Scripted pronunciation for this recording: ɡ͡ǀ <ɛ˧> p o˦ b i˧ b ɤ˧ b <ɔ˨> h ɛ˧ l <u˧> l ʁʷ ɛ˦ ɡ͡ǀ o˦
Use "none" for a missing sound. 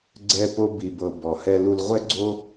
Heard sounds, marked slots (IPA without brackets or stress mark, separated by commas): ɛ˦, ɔ˨, u˧